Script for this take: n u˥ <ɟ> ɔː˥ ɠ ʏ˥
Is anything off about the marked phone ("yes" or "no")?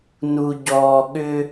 no